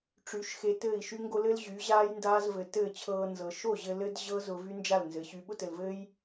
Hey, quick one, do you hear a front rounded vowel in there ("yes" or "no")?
yes